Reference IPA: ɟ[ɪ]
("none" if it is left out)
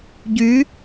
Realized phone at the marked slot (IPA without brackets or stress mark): y